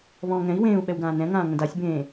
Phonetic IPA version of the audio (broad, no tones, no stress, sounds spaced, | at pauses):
β ɔ̃ː ŋ ɛ̃ i̯ w ẽː u̯ ɓ ɛ w ɡ ãː n ɛ̃ ŋ ãː ŋ ə̃ d a sʲ b ẽː